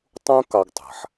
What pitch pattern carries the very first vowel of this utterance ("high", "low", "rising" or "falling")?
high